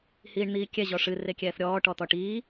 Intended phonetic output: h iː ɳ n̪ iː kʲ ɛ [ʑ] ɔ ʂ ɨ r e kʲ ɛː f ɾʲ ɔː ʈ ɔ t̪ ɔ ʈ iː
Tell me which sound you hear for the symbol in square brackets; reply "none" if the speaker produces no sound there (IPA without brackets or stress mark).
ʑ